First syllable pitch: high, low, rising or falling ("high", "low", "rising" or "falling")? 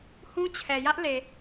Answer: high